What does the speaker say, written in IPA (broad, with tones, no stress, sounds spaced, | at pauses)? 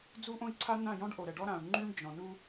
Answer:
d͡z u˦ ʔ õ˦ i̯ ǀʰ a˦ n ã˦˨ j ɔ̃˦ ɖ ʔ o˨ ɾ ɛ˨ ɖ ɔ˦ ɾ ã˨ u̯ ŋ͡ǃ y˦ ɳ d͡ʒ ɔ̃˨ n u˦